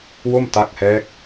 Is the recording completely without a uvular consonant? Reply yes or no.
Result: yes